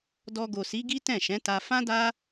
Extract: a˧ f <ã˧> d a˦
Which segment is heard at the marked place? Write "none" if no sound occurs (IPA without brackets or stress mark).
ã˦